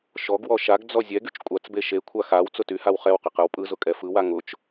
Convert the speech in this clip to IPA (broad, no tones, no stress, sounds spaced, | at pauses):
ʃ ɔ ɡ w ɔ ʃ a ɡ d͡z ɔ zʲ ɛ ɡ y t͡ʃ kʷʼ a t͡s b e ʃ e kʷʰ a x a w t͡s ʊ t y h a w χ ɛ w q e q ɯ w pʼ ɯ z ʊ kʼ ɛ f ɯ w a ŋ ʊ t͡ʃ